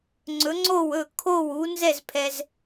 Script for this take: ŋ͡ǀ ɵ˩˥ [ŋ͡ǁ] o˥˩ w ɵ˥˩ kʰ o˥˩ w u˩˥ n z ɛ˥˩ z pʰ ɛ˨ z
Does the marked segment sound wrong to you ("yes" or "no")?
yes